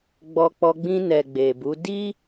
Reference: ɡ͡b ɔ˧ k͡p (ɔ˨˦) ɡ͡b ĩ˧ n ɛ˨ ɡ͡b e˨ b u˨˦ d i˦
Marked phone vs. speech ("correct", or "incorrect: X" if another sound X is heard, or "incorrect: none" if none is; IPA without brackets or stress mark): incorrect: ɔ˧